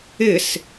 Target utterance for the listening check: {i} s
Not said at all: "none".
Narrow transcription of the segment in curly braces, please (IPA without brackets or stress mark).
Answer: ɪ